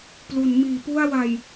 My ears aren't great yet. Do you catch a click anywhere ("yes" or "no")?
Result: no